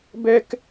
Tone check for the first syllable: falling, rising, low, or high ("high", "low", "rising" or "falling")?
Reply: high